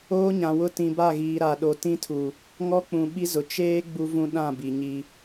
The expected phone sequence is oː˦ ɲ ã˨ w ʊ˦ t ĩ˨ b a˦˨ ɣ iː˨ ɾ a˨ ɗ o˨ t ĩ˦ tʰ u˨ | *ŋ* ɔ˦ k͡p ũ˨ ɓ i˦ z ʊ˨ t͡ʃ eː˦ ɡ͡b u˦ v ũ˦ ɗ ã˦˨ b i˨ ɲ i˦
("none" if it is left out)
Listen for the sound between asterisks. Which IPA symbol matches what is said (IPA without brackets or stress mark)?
ŋ